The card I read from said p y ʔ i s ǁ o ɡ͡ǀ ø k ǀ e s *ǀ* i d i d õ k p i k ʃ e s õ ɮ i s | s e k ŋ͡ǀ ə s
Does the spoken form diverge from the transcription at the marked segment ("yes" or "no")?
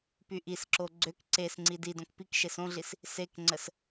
yes